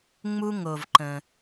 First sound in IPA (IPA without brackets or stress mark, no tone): ŋ͡m